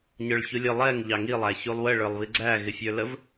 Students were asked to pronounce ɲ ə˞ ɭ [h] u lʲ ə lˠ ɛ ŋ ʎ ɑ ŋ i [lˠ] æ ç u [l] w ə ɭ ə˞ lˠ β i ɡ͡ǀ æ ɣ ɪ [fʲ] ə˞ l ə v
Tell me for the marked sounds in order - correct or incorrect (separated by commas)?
incorrect, correct, incorrect, correct